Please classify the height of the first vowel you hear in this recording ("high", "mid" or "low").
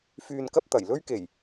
high